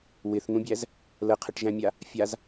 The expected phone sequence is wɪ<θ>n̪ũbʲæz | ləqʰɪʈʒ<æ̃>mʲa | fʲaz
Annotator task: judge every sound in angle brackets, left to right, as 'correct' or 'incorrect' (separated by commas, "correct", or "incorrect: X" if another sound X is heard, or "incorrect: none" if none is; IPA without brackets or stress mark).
correct, correct